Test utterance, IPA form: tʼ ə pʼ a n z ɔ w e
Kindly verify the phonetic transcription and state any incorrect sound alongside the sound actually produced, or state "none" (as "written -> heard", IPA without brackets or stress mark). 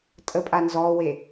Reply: none